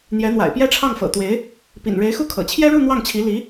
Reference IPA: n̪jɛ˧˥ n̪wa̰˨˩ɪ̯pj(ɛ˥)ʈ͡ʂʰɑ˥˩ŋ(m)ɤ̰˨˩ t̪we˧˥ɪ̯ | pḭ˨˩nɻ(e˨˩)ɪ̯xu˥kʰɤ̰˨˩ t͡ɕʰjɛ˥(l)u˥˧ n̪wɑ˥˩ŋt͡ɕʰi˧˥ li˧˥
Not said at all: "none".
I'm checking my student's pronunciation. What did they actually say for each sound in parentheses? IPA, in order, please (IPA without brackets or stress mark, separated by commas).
ɛ˥, f, e˧˥, ɻ